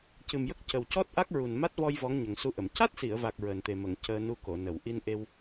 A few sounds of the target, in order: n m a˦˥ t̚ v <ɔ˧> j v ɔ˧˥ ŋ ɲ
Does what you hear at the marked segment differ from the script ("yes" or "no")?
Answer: no